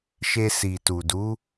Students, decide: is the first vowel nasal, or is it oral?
oral